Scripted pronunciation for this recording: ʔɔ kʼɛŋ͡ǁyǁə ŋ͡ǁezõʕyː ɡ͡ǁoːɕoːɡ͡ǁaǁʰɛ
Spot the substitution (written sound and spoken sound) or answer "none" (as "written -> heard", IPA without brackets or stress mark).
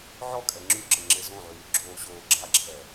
ʔ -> ʕ